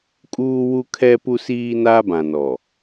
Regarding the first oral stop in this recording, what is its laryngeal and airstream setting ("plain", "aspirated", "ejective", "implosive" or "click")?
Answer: ejective